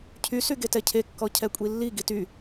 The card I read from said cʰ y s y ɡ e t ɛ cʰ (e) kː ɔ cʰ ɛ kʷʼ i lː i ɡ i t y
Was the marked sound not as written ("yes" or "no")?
no